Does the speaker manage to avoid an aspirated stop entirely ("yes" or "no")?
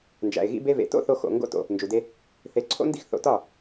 no